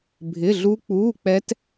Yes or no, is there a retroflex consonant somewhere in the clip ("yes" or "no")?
no